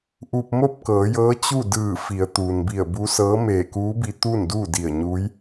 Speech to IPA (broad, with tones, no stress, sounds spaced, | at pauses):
ʔ u˧ p̚ m o˥˨ p̚ k ɤː˩˧ j ɤː˧˥ t͡ɕ u˥˨ d ɯː˧˩ f i˩˧ ə̯ t̪ uː˩ n b i˧˩ ə̯ b u˧˥ s ɤː˧˥ m eː˧˩ k uː˧˥ b i˧ t̪ uː˥˨ n d uː˥˨ d i˧˩ ə̯ ɲ uː˧˥ j